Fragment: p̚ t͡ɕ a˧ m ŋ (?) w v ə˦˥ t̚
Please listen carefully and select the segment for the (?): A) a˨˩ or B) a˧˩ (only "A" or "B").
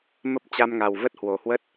A